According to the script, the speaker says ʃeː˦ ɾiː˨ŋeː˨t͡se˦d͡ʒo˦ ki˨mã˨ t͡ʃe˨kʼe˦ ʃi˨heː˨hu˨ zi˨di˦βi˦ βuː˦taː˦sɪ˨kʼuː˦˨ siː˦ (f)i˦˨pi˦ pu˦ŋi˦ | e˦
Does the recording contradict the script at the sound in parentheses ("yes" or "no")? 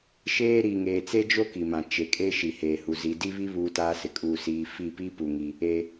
no